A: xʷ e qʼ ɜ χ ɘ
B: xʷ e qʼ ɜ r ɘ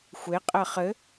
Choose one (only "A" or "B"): A